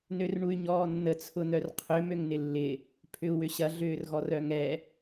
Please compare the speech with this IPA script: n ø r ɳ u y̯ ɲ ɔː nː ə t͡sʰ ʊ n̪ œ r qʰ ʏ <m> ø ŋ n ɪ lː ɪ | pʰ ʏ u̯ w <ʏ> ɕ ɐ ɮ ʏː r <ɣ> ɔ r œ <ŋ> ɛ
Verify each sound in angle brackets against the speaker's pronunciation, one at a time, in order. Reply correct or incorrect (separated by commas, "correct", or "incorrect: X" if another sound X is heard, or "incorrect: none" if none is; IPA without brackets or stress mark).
correct, correct, correct, correct